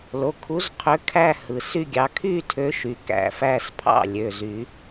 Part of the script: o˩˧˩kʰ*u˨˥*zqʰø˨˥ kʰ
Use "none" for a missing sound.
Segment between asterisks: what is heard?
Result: u˨˥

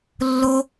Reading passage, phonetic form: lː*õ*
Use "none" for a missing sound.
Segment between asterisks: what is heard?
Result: o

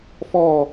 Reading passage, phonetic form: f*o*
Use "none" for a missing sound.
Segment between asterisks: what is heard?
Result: ɔ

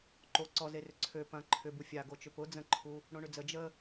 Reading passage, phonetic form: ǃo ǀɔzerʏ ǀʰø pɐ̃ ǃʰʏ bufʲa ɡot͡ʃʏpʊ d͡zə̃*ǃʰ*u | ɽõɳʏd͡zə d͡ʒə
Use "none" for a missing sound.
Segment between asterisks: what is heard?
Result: ǃʰ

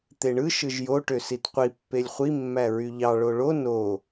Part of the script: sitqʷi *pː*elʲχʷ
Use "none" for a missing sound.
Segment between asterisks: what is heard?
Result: pː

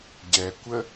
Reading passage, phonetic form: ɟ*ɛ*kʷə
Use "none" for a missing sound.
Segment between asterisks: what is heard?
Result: ɛ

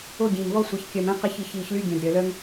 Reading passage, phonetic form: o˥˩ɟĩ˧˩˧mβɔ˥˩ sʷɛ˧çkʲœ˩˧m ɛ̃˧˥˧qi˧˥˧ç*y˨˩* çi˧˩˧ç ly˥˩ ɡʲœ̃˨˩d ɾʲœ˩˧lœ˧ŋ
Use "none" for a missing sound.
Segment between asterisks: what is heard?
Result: i˨˩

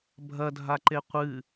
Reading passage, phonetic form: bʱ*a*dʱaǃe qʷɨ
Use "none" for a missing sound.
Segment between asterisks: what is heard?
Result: ɐ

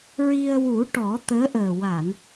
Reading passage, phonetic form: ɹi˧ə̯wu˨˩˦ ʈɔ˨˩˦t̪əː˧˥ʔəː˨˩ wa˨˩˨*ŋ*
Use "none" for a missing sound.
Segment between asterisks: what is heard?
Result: n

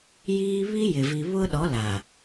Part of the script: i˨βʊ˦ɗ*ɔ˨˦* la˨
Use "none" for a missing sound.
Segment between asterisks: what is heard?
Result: ɔ˨˦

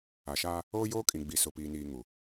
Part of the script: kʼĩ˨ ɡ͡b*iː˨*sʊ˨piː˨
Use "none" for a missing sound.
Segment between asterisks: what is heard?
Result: i˨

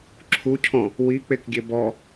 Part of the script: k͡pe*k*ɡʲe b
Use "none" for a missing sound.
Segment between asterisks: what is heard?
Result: k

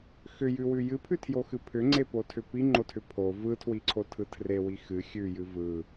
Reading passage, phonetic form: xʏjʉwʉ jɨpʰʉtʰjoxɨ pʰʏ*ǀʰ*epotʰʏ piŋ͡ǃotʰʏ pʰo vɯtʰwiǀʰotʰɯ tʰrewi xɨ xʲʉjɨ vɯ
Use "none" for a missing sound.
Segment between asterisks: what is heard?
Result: ŋ͡ǀ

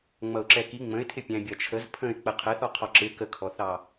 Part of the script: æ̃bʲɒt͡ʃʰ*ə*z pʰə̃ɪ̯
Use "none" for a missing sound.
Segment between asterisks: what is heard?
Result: ə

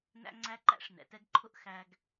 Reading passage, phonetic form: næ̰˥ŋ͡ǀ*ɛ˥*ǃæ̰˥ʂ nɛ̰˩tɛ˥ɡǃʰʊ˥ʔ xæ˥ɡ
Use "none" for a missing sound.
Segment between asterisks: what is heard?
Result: æ˥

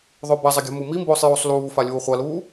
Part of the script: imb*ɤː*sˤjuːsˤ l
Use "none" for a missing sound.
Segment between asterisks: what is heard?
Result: oː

